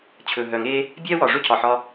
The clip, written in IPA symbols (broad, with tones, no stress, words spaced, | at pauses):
t͡ɕʰɵ˨˩ ɦœ˨˩ŋe˥ | bʲɛ˥wɒ˨˩ʐɵ˥ cʰɒ˨˩ħɒ˥